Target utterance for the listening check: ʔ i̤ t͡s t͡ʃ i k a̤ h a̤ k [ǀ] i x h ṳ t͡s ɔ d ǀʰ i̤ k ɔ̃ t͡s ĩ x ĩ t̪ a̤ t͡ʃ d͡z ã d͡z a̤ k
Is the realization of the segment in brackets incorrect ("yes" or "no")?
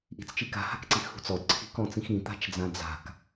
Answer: no